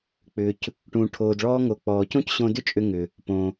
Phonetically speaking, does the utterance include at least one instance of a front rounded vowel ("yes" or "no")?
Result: yes